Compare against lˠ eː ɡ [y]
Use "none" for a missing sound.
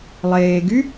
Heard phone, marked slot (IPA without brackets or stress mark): y